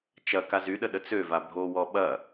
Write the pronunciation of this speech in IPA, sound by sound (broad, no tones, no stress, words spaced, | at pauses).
t͡ʃɐ kazyɗə ɗət͡søva bʱowɔ ɓɐ